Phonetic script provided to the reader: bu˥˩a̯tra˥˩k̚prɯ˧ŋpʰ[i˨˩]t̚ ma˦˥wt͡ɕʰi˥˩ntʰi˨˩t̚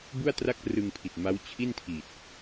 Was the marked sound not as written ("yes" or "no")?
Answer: no